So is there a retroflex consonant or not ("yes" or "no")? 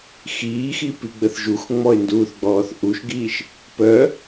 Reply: no